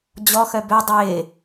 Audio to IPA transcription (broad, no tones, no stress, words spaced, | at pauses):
d͡ʑɔ xœbø dˤɪː